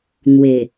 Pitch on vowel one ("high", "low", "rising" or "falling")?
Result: low